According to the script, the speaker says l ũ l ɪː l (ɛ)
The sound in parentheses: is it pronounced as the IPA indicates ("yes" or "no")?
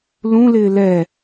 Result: yes